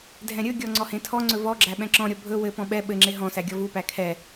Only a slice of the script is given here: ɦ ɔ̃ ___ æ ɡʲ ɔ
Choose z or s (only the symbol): s